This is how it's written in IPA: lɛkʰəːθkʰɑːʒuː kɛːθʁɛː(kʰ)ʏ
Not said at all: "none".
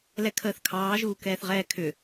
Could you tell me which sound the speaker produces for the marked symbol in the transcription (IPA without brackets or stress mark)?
kʰ